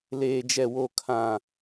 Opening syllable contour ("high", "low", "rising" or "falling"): low